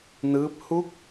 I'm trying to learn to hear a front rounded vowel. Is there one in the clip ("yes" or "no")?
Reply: no